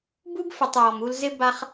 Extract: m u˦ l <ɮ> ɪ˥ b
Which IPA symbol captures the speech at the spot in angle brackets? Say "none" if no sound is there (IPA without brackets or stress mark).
z